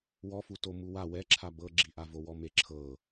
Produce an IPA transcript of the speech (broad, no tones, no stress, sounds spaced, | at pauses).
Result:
w ɔ f u t o m u w a w ɛ ǁʰ a b ɤ ɡ͡ǁ i ʔ a v o w ɔ m e ǁʰ ɤ